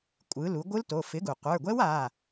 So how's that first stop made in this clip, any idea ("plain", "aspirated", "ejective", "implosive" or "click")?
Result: ejective